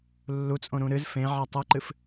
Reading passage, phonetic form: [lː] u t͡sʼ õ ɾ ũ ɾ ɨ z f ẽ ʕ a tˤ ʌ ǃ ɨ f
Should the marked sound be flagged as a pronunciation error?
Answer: no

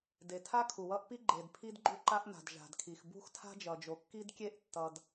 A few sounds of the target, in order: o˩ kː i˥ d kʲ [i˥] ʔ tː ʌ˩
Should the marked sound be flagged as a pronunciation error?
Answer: yes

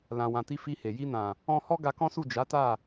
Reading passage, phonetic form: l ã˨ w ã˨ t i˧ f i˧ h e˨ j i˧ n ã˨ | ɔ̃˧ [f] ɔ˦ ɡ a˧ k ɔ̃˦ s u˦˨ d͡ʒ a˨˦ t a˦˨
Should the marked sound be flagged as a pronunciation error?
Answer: yes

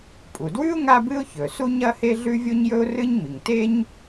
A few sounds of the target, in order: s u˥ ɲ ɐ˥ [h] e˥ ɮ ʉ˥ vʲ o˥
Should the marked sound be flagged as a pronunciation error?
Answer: no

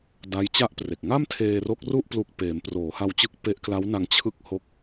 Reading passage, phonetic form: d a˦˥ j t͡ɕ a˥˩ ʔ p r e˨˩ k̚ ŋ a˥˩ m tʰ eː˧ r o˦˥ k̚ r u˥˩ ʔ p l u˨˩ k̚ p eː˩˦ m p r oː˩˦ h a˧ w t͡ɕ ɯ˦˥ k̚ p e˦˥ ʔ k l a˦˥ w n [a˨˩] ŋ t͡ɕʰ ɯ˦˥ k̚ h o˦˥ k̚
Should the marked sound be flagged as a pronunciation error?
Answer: yes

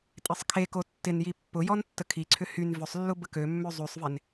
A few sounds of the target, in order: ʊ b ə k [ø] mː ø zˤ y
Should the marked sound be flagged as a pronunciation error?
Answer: no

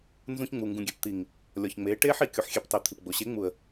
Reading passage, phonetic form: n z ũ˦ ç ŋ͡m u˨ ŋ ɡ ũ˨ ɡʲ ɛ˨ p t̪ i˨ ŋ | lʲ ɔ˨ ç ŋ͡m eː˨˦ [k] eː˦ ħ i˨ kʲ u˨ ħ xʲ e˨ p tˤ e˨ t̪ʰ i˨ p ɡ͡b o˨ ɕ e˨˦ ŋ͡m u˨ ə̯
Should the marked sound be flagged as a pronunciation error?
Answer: yes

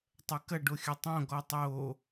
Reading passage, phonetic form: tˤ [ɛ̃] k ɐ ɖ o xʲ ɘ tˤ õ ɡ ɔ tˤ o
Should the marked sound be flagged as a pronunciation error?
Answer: yes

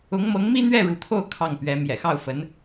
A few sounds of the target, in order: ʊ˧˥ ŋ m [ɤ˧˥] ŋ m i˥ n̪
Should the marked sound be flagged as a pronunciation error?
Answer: no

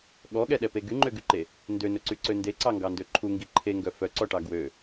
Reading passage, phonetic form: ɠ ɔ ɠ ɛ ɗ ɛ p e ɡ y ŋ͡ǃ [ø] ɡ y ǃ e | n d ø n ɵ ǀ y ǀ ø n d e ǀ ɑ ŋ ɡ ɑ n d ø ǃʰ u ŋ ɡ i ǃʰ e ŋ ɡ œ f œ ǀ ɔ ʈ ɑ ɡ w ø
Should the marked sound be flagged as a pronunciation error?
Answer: no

